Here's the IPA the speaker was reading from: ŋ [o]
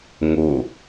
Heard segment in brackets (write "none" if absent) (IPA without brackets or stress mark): o